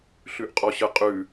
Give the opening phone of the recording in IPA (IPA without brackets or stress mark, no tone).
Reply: ɬ